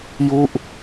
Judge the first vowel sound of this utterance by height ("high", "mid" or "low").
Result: high